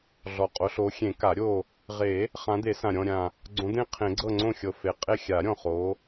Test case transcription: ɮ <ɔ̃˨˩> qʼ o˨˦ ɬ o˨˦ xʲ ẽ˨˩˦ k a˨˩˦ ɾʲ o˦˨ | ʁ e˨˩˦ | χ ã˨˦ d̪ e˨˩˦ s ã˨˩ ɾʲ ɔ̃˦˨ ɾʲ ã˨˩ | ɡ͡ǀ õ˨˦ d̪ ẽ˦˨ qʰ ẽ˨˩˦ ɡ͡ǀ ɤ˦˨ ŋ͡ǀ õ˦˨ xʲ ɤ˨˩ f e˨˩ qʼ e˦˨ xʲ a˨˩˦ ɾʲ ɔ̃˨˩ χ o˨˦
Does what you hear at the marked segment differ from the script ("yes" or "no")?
yes